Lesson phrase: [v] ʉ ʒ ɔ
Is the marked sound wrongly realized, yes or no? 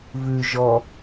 no